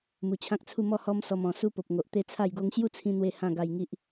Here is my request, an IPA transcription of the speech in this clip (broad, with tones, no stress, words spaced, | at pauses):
mu˨˩t͡ɕʰã˦k̚t͡sʰu˥˧mɔ˥˧ hɔ˦msɔ˧mɔ̃˨˩su˦ po˨p̚ŋo˨ʔ t̪e˦t͡sʰa˥˧jɡo˦ŋ ɕju˥˧t͡sʰĩ˧ n̪we˥˧hã˥˧ ɡa˧jŋi˦ʔ